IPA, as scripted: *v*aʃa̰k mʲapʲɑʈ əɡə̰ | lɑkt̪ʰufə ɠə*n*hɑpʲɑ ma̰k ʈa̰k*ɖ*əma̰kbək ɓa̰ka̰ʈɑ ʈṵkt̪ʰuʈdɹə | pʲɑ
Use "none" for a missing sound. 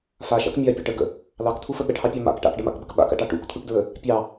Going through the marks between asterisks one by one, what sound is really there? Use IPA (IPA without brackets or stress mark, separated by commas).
f, ʈ, ɖ